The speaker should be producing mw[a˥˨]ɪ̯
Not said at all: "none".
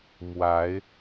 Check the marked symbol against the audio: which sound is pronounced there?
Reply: a˨˦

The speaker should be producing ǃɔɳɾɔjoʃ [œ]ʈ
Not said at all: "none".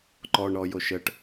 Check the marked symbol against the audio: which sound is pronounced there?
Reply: ə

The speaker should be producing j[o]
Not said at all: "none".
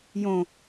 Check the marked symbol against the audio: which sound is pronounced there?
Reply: õ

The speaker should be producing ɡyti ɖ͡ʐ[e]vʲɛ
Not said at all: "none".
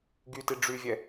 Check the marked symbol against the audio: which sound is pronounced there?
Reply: y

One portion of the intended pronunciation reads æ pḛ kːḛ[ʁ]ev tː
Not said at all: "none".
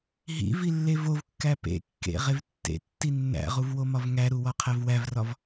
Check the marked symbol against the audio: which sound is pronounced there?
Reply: ʁ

